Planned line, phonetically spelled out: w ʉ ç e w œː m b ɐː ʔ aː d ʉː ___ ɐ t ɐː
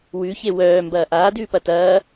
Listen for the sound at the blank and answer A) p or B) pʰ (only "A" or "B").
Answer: A